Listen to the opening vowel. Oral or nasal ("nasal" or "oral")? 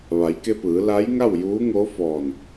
oral